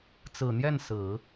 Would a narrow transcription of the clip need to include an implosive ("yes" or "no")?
no